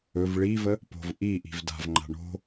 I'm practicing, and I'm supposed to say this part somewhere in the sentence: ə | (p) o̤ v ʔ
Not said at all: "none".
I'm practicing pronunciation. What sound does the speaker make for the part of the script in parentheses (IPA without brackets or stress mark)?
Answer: p